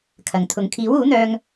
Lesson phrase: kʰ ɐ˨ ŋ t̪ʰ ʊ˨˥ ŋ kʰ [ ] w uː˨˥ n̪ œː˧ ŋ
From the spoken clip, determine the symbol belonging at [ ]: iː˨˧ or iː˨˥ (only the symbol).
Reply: iː˨˥